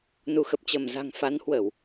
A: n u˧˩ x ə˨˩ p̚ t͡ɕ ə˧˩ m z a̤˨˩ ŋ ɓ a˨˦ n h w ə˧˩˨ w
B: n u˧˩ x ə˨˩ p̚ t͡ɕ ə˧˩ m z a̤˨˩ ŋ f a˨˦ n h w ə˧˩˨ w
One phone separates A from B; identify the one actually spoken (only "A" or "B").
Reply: B